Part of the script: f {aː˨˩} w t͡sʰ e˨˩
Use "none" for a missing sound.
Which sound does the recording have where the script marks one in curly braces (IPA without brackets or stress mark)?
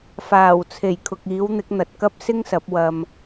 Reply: aː˨˩